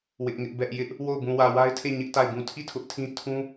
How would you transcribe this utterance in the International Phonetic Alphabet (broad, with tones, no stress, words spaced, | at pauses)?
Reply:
wɪ˦ʔŋɪ˦ʔbɛ˦ʔ jɪ˦ʔ | wo˦˨ʊ̯ bũ˨wä˨wa˦ɪ̯tʰe˦˨ ɲɪ˦ʔ ta˦˨ɪ̯bũ˦˨ tʰi˦˨ tʰʊ˦ʔtʰĩ˦ tʰũ˦